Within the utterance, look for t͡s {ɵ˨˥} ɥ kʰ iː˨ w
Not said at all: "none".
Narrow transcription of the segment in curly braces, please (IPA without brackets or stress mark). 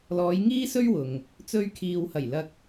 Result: ɵ˧